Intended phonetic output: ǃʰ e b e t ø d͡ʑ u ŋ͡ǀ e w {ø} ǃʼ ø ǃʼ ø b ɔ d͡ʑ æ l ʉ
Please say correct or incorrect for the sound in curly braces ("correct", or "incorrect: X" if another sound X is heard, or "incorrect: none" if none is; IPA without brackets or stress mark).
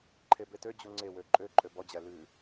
correct